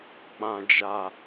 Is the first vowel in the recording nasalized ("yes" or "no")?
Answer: yes